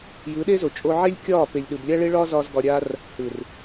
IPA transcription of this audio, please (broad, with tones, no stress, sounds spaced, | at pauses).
j ɯ˨˦ ɗ e˦ z o˨ t͡ʃʼ o˧ ʕ e˦ lʲ kʲ ɒː˦˨ p e˨ lʲ ɗ ɯ˨ b lʲ a˦ ɭ e˦ ɭ ɒː˦ z ɒː˧ z ɡ ɒ˧ ɾʲ a˦ r | h ɯ˨ r